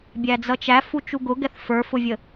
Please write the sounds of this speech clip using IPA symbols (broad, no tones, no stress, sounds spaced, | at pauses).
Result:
bʲ æ d͡z ʌ t͡ʃ æ f u t͡ʃ u ɡ ʊ ɡ ɛ θ f ə˞ f ʊ vʲ ə